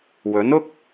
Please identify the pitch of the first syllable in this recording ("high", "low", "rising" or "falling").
rising